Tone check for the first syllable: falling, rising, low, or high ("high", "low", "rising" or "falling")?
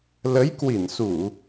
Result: rising